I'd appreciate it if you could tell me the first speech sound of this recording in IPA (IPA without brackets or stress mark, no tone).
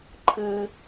ǃʰ